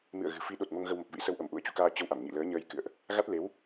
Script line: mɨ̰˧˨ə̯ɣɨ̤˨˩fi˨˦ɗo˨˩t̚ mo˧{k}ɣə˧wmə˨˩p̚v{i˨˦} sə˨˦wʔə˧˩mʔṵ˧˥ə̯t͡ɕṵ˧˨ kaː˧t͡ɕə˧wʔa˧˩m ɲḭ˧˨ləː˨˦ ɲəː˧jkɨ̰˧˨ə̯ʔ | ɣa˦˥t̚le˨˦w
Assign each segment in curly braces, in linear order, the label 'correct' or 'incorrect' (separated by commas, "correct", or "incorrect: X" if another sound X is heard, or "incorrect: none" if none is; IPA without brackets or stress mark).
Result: incorrect: ŋ, incorrect: ḭ˧˥